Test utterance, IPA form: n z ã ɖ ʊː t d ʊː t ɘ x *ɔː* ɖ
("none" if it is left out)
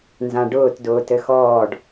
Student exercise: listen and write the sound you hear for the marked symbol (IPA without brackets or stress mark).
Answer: ɔː